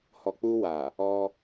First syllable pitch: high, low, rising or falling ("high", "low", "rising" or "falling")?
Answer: low